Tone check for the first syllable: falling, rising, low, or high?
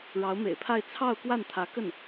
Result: rising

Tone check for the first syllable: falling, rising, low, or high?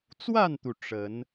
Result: falling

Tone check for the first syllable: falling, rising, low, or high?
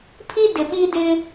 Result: high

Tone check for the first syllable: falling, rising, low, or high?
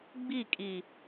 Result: falling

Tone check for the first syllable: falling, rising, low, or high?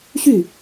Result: falling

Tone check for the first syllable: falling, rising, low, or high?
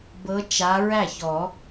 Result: rising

